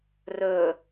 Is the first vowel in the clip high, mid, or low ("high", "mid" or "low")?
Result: mid